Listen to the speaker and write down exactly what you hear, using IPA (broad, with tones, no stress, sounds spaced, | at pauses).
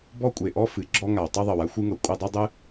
b ɔ˥ kʷʼ e˩ ʔ ɔ˥ f ɨ˩ ɡ͡ǁ ɔ˥ ŋ a˩ w tˤ ɤ˥ ðˤ ɤ˩ w a˥ xʷ ɨ˥ ŋ ɤ˩ kʷʼ ɨ˥ dˤ ɤ˥ dˤ ɨ˥